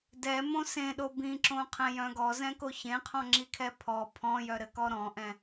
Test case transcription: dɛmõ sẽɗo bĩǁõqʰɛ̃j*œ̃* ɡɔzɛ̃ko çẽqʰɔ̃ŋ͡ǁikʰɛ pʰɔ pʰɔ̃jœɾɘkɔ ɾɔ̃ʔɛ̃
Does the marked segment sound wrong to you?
no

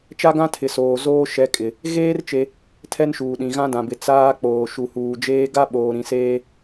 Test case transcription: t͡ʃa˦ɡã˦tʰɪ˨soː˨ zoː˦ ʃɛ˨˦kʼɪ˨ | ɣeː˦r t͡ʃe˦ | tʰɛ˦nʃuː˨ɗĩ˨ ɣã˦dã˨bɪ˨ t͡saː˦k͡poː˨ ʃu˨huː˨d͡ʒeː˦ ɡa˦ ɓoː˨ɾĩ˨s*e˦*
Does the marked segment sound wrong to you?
yes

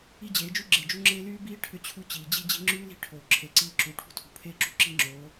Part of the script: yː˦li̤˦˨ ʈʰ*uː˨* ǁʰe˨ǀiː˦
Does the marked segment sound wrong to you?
yes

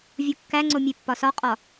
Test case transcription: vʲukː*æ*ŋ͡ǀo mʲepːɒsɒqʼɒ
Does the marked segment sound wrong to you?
no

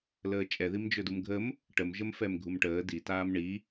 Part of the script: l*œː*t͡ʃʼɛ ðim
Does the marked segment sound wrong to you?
yes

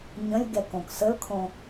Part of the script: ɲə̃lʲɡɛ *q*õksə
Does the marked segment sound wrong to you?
yes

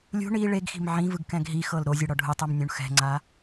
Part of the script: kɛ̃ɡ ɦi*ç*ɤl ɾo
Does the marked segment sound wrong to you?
yes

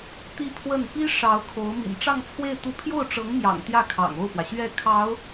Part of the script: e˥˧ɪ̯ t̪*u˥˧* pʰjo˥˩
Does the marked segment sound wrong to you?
no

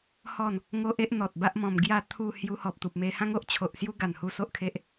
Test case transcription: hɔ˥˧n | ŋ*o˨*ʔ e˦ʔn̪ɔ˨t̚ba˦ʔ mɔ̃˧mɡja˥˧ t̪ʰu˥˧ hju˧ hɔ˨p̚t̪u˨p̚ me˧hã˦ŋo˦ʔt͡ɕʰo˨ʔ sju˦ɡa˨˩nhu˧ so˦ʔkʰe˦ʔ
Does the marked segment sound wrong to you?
yes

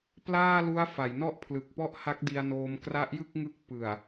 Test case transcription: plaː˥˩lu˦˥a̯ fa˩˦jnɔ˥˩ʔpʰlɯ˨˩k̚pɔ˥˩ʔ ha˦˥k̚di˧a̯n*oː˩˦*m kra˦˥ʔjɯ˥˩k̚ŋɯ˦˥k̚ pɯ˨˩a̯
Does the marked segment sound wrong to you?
yes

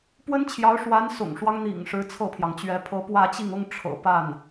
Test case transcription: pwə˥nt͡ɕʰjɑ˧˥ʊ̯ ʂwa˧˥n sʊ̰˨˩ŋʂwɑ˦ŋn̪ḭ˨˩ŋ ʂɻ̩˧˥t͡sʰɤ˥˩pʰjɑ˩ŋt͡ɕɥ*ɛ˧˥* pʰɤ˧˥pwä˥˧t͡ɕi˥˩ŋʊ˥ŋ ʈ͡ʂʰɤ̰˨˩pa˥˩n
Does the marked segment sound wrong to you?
no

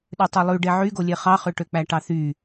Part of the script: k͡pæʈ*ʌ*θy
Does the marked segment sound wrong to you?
yes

